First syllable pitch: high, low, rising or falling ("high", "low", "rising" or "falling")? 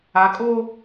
low